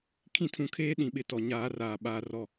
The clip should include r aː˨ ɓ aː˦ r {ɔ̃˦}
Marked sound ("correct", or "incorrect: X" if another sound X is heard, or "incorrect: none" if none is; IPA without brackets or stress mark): incorrect: ɔ˦